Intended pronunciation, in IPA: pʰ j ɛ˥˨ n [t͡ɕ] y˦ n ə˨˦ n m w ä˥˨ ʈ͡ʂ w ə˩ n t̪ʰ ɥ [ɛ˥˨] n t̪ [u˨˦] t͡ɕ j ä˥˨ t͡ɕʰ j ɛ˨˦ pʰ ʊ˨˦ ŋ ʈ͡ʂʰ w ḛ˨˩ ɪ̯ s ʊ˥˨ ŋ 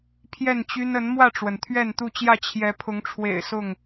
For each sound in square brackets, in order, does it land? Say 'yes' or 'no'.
yes, yes, no

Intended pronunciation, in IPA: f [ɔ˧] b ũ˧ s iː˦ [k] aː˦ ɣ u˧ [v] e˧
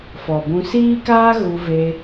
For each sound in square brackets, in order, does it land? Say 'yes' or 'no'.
no, yes, yes

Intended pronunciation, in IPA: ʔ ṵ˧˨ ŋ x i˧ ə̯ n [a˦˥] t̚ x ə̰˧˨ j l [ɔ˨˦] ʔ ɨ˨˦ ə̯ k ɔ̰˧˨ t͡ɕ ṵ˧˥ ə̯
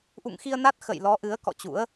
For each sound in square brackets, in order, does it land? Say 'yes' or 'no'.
yes, yes

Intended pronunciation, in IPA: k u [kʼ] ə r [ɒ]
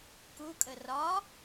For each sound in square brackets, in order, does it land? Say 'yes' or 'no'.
yes, yes

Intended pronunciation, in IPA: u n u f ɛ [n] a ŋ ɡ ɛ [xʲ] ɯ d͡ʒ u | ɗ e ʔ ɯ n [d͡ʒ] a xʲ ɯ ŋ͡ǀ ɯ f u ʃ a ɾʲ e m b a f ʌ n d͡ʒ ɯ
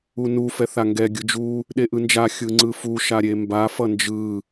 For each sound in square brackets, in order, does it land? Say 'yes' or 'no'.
no, no, yes

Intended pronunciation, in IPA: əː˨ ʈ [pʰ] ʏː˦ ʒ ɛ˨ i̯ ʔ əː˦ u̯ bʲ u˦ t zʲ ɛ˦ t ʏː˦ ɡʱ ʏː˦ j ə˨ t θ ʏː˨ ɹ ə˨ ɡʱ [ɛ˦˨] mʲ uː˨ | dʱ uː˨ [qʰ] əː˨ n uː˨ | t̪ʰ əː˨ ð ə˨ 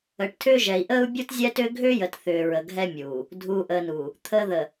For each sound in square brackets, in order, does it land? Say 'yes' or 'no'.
no, no, no

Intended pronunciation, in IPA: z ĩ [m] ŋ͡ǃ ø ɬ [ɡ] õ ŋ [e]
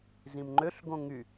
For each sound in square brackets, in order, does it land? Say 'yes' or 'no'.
yes, yes, no

